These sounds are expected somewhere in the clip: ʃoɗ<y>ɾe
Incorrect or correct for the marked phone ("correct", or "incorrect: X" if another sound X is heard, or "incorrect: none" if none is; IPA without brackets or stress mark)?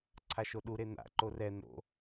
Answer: incorrect: u